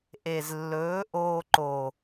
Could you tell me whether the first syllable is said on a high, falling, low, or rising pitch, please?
low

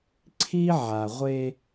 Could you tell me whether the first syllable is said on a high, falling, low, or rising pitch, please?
high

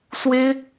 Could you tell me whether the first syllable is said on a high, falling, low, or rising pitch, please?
high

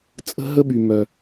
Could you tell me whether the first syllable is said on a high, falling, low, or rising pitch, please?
high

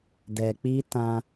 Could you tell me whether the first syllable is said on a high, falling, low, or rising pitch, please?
low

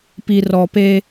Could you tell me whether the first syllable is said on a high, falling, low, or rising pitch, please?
low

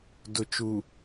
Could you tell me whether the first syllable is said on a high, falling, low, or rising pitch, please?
low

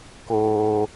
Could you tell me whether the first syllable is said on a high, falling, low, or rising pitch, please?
high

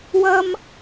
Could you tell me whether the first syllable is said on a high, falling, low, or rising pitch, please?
high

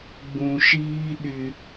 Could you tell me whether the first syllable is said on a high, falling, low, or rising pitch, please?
low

